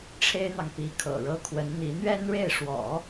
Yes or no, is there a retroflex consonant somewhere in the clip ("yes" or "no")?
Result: yes